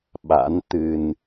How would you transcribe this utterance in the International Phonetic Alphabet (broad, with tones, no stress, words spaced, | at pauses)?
ɓa̰˧˥n t̪ɨ˧n